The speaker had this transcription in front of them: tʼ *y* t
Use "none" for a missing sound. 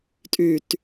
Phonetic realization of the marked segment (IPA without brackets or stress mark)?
y